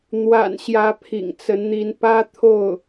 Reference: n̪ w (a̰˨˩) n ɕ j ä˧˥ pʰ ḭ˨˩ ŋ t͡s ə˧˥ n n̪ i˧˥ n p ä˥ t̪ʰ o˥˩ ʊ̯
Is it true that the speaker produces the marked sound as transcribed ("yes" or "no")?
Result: yes